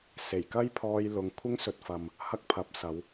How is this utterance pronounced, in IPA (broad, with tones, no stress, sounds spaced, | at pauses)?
s e˨˩ j k ɐ˥ j pʰ ɔː˧ j l ʊ˨˧ ŋ kʷʰ ɪ˥ ŋ s ɵ˨ t̚ f ɐ˨ m | h ɐ˥ k̚ pʰ ɐ˨˥ p̚ s ɐ˨˧ w